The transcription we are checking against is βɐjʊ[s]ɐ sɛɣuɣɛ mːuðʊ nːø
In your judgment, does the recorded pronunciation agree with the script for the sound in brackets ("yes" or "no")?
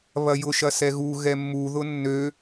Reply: no